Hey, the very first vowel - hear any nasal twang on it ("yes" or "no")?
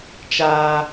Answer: no